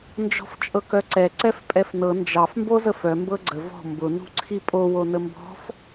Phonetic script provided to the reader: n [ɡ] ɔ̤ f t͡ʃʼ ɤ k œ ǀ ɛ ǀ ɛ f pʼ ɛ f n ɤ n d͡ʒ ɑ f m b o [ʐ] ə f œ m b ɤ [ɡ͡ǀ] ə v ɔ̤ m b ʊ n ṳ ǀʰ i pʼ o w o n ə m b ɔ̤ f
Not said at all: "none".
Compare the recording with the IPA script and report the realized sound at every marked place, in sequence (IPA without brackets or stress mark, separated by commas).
d͡ʒ, z, ɡ͡ǀ